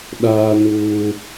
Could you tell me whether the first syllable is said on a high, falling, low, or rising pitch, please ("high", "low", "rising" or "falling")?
high